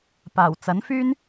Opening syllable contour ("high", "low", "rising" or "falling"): low